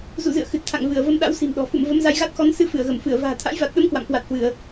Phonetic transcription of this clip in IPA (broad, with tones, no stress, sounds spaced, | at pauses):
z ṵ˧˨ z ɨ̰˧˨ ə̯ x ɨ˨˩ t̚ t̪ʰ a̰˧˨ ŋ v ɨ˧˩ ə̯ v ə˧ m ɗ a̰˧˥ w s i̤˨˩ m ɗ ɔ̤˨˩ f ṵ˧˨ m v ə˨˦ m z a˧ j ɣ a˦˥ t̚ x ɔ˨˦ n s ɨ˧ f ɨ˧˩ ə̯ ɣ ə˧˩ m f ɨ˧˩ ə̯ v a̤ː˨˩ t̪ʰ a̰˧˥ j v a˨˩ t̚ ɗ ə˨˦ m k w a̰˧˨ m k w a˨˩ t̚ h w ɨ˧˩˨ ə̯